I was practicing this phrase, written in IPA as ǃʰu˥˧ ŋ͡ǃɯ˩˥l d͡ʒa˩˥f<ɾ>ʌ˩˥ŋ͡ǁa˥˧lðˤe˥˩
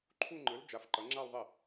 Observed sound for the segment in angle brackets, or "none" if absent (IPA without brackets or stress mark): ǃ